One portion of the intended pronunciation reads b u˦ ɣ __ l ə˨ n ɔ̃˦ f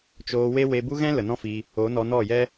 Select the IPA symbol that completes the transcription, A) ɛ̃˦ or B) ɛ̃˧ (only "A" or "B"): A